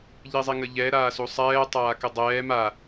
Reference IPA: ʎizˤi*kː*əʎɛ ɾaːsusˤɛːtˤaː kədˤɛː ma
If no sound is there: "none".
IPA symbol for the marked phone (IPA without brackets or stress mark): ŋ